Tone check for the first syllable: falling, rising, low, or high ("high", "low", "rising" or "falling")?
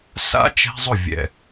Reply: high